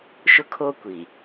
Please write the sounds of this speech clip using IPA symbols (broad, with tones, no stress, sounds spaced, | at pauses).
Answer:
ʃ ʊ˦ kʰ oː˦ kʷ i˨